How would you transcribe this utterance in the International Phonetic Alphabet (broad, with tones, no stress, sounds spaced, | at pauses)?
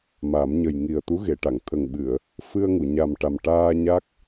m a˨˩˦ m ɲ ə˨˩ j ŋ i˨˩ ə̯ t̪ u˧˥ ɣ e˨˩˨ ʈ a˨˩˨ ŋ t̪ʰ ə˨˩ ŋ ɓ ɨ˨˩˨ ə̯ | f ɨ˧ ə̯ ŋ u˨˩˨ ɲ a˨˩ m ʈ a˨˩ m ʈ aː˧ ɲ a˦˥ k̚